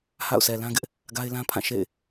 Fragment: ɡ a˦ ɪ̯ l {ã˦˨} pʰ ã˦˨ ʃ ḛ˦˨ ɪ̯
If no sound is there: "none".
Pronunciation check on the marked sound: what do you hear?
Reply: ã˦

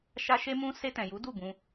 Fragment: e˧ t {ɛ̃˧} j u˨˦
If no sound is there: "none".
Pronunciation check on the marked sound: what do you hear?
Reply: ɛ̃˨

